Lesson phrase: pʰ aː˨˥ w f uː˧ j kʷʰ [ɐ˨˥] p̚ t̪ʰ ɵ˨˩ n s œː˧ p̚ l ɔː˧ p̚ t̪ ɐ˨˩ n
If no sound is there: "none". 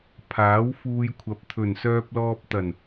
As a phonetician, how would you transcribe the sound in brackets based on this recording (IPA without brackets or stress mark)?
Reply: ɐ˨˥